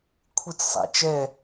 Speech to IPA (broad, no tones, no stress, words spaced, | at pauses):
kʷʰit͡ssˤæ̰t͡ʃɛ